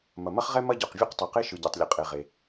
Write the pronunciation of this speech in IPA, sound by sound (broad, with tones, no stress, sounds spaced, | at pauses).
m ɐ˩ m ɐ˥ χ ʁ ɛ˥ m ɐ˥ ɟ ɔ˩ q vʲ e˥ q tˤ o˩ q e˥ ʃ ɯ˩ ɟ ɛ˩ tˤ lʲ ɐ˩ qʼ e˩ ʁ e˩